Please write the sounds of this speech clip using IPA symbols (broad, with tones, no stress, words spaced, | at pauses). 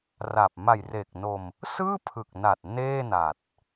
ra˨˩p̚ ma˨˩jreː˨˩k̚no˧m | sɯː˥˩pʰɯ˨˩k̚na˨˩t̚ neː˥˩na˨˩t̚